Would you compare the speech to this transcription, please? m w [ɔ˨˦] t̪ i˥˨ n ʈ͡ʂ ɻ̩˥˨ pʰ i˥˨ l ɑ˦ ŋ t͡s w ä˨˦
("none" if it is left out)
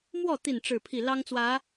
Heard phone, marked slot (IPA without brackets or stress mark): ɔ˥˨